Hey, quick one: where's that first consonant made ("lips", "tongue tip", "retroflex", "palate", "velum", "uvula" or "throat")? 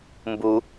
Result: lips